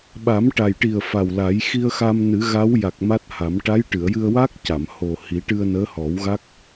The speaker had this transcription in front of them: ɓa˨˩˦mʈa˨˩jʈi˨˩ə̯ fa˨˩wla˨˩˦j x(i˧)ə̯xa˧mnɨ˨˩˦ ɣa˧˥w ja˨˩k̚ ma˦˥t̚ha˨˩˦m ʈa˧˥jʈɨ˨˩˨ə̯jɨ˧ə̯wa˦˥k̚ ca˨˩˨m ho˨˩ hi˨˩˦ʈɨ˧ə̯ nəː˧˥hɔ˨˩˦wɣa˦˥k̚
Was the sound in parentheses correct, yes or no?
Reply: yes